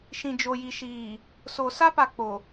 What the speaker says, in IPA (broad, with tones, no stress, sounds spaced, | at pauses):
ʃ ĩ˨ d͡ʒ o˨ j i˨ ʃ iː˨ | s o˨ s a˦ p a˨ k͡p o˨